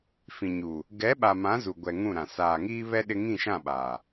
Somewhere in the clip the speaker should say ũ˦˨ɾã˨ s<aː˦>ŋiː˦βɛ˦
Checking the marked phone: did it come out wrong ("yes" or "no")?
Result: yes